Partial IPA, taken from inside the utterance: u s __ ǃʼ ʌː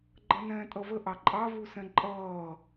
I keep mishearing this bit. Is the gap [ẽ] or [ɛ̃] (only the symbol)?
ɛ̃